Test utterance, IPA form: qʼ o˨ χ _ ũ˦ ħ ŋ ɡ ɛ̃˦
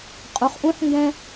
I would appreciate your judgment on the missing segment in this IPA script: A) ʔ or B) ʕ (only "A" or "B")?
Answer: A